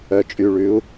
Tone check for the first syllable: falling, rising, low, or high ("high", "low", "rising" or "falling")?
low